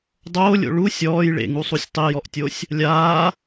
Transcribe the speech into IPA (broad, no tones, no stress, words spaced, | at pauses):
dˤoːlʲo̰ ɭu sʲɔːj ɭḛŋusˤusʲ tˤijɔʔtʲosʲ | lʲaː